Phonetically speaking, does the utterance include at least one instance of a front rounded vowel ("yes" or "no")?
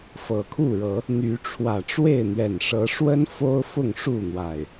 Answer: yes